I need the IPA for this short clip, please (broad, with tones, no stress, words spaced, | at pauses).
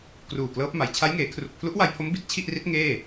kruː˨˩klɤː˦˥p̚ma˩˦j t͡ɕʰa˦˥jŋeː˩˦ kʰru˨˩k̚pʰlu˦˥ʔwa˧jpʰo˦˥m bi˦˥t̚t͡ɕʰi˥˩ʔri˦˥t̚ ŋeː˥˩